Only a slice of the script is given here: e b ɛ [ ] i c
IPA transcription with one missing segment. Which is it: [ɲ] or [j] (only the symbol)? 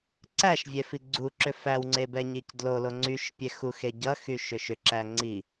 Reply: ɲ